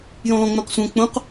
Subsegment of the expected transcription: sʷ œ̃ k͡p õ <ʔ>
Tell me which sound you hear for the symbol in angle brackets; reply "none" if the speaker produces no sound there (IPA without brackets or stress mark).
q